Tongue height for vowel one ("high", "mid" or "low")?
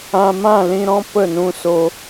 low